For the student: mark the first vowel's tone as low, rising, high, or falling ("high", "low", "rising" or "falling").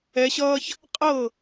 rising